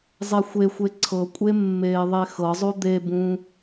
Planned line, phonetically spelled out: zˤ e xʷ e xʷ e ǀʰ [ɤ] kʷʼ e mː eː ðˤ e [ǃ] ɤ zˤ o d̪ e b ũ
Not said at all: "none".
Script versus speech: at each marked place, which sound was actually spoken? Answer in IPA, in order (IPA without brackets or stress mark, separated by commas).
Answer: ɤ, x